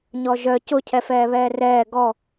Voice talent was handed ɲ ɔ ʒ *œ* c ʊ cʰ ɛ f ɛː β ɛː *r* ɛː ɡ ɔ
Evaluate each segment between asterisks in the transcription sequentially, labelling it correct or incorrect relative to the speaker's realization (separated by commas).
correct, correct